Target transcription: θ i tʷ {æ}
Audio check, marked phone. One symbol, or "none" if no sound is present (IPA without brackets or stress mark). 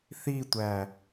æ